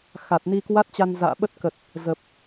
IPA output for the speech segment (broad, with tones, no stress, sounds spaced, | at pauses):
x a˨˩ t̚ n i˧ k w a˦˥ t̚ t͡ɕ a˧ n z a̰ː˧˨ ɓ ə˦˥ t̚ k ə˨˩ t̚ | z ə˨˩ p̚